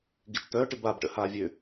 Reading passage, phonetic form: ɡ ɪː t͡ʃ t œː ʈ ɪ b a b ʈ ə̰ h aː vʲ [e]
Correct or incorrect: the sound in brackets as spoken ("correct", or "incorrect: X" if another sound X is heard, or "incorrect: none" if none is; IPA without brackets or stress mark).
incorrect: ø